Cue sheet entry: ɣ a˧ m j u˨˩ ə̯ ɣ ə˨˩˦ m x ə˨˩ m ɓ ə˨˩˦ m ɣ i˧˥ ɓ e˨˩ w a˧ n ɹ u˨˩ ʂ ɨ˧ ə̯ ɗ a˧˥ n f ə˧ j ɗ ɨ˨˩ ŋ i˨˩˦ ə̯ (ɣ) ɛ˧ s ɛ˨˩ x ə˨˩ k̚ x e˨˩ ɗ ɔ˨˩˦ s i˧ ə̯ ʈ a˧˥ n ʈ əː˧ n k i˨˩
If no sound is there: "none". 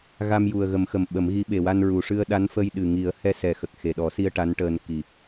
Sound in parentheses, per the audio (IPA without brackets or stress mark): h